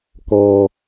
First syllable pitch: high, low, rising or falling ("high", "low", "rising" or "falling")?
low